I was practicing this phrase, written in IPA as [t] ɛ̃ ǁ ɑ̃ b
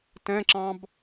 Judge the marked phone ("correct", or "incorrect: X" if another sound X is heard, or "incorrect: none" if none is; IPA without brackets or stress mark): correct